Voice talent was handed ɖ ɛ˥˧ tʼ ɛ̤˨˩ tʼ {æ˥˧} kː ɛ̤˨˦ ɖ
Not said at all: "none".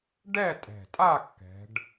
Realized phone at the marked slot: a˥˧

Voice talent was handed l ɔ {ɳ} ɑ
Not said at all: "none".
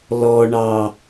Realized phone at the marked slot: ɳ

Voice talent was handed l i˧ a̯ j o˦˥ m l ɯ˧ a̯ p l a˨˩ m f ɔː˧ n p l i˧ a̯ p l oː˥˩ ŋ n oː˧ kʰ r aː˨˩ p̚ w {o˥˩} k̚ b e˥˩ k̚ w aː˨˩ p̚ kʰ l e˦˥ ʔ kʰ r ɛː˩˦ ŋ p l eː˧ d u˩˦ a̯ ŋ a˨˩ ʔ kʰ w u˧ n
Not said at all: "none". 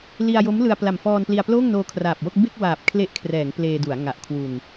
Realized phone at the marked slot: o˥˩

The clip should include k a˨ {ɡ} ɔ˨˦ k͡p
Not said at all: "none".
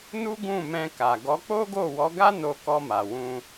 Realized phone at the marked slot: ɡ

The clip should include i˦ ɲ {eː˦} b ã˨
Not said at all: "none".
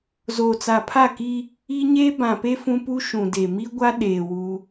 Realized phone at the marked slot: eː˦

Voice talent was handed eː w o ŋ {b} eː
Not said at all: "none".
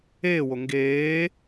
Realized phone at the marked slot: ɡ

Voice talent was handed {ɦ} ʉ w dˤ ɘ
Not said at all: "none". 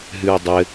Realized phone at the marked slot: ɦ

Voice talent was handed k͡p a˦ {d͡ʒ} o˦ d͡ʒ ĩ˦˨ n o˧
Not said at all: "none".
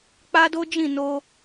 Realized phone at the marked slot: d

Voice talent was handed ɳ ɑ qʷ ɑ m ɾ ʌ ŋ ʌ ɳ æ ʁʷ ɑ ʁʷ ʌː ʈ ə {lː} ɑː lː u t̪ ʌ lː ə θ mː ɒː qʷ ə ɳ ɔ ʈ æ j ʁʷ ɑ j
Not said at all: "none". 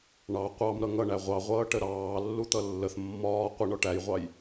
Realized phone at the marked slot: ɾ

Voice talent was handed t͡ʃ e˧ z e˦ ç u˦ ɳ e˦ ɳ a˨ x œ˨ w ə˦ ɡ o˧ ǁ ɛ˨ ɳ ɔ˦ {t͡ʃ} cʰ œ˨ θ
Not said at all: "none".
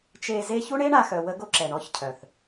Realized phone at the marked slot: ç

